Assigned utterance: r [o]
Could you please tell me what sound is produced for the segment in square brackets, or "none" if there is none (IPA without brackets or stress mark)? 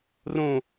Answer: õ